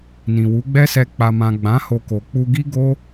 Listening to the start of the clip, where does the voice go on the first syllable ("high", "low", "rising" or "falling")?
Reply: low